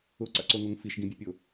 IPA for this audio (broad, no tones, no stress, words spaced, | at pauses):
ʊǀa̰ǀoŋoŋ fiʃɡĩbʲepʲʊ